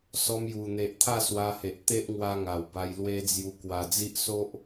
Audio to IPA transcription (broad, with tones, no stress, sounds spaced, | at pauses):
s ɔ˧ m j u˨˩ n̪ e˨ ʔ t̪ʰ a˥˧ s w a˧ h e˨ ʔ t̪ e˦ ʔ ŋ w a˧ ŋ a˨˩ w b a˧ j l w e˦ d͡z j u˧ k w a˨˩ d͡z i˦ ʔ s o˦ ʔ